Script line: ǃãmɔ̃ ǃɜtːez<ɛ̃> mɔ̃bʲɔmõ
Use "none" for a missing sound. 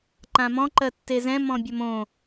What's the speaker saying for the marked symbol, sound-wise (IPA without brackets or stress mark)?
ɛ̃